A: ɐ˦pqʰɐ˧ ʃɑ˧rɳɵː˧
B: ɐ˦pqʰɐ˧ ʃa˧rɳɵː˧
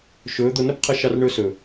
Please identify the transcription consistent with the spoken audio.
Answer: A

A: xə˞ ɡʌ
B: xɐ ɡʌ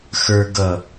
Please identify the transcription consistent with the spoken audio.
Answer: A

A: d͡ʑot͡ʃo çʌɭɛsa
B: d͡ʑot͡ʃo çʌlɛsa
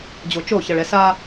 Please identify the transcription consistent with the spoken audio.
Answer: A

